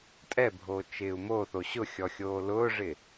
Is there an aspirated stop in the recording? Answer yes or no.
no